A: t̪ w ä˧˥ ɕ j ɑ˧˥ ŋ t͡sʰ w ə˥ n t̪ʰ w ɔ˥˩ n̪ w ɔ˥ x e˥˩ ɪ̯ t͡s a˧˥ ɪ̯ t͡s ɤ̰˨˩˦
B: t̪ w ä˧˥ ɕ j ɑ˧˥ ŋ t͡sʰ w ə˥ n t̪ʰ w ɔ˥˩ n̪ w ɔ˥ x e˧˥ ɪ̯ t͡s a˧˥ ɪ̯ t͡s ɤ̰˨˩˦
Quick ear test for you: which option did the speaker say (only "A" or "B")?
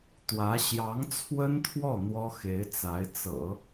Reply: B